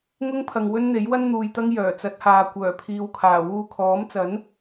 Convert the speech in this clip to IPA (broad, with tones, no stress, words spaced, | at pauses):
ŋʊ˥ŋpʰɐ˨ŋ wɵ˥nn̪e˨˥jwɐ˥n n̪uː˨jt̪ɐ˥ŋ jœː˨˩t͡sɐ˨˥t̚haː˨ kʷœː˨˩pʰiː˨wkʰaː˨˩ wuː˧kʰɔː˨˥mt͡sɐ˨˥n